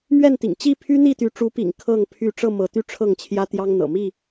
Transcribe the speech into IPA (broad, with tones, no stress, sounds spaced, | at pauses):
m ɥ ɛ˥˨ n t̪ ḭ˨˩ ŋ t͡ɕ i˥˨ pʰ y˦ n̪ i˥˨ t̪ y˨˦ ʈ͡ʂ u˨˦ p ḭ˨˩ ŋ kʰ ɤ˥˨ ŋ pʰ y˥˨ ʈ͡ʂ ɤ˥˨ m ɤ˨˦ t̪ y˥˨ ʈ͡ʂʰ ɤ˥˨ ŋ t͡ɕʰ j ä˦ t̪ j ɑ˦ ŋ n̪ ɤ̰˨˩ m i˥˨